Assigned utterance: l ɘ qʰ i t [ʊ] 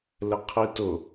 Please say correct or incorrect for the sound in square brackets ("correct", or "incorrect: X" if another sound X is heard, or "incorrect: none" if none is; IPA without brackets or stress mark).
correct